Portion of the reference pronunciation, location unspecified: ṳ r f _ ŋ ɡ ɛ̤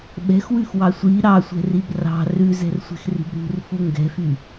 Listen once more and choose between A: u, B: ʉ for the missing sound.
A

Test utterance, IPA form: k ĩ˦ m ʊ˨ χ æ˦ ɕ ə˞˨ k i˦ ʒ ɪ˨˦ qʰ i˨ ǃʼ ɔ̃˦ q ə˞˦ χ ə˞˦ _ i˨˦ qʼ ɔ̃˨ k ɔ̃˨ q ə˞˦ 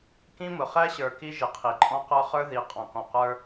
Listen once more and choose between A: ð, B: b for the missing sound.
A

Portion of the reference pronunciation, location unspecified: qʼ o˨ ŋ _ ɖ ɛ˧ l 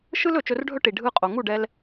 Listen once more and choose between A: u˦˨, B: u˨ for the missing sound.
A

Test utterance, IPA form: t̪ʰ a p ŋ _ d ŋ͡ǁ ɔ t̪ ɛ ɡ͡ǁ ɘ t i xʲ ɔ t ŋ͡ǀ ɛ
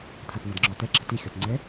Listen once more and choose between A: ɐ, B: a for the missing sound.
A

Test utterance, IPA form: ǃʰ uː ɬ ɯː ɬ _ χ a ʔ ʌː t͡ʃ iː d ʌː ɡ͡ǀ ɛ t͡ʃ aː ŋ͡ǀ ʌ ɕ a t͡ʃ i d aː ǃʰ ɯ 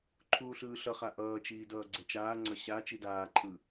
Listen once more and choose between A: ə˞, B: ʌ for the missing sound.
B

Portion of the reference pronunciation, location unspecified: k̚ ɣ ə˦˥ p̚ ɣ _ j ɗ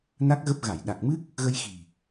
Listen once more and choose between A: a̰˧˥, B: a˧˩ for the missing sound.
B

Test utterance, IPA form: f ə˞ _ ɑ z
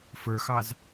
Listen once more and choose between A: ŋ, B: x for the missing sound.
B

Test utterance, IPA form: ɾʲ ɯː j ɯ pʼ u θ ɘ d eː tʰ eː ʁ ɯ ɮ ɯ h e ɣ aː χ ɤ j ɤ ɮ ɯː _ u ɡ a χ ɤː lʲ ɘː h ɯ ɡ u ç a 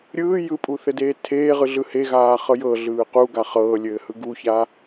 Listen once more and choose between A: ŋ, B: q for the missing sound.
B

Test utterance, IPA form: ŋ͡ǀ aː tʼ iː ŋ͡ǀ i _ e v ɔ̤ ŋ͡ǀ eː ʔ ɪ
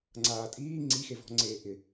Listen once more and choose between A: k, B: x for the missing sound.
B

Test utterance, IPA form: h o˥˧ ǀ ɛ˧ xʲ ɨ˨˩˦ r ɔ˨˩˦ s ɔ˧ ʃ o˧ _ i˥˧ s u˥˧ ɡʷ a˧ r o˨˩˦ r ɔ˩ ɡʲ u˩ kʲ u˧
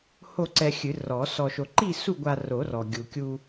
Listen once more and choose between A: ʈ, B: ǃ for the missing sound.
B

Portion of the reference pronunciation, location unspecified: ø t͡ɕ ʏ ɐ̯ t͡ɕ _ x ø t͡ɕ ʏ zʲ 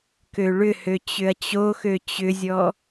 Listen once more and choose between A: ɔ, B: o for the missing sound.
B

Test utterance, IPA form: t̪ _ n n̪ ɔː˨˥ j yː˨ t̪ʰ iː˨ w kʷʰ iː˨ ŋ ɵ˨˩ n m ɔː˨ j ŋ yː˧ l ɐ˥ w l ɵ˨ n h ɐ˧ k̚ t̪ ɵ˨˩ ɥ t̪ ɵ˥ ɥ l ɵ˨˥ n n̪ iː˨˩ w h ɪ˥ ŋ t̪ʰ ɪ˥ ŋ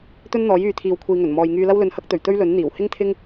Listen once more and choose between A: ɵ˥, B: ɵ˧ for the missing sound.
A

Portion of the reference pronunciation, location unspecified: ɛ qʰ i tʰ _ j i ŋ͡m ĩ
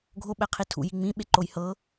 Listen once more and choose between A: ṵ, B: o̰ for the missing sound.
A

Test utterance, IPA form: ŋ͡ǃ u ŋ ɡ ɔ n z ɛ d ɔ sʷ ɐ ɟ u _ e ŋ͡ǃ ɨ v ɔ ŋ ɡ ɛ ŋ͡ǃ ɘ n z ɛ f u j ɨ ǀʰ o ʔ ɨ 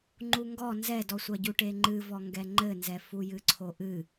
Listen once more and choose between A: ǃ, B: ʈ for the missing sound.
B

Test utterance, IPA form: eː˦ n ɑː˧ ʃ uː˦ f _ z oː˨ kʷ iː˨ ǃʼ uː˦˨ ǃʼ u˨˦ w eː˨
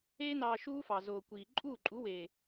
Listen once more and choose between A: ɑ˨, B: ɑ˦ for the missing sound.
A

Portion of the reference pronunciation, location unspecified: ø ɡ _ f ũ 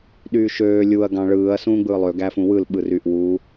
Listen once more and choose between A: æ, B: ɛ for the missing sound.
A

